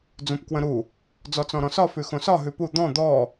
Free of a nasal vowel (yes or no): no